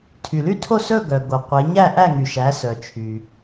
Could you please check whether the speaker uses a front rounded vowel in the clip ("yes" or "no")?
yes